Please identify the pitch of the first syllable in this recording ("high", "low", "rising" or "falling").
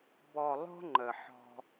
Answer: low